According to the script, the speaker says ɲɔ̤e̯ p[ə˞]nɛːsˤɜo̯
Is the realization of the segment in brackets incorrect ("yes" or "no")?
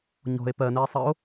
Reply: yes